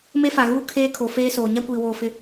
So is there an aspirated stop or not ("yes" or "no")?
yes